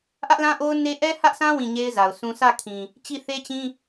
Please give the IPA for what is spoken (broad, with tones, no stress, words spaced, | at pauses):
ʔä˦ʔlã˦ʔo˦ʊ̯ne˦ ʔɛ˦hä˦ʔsʰã˦ wĩ˦˨ɲe˦ɪ̯za˨ʊ̯sũ˦ sä˦˨kʰĩ˨ | t͡ɕi˦˨θe˦t͡ɕĩ˦